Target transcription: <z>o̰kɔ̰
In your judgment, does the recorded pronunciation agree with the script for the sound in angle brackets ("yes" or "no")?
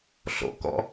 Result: no